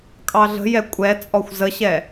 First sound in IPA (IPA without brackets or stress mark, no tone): kʼ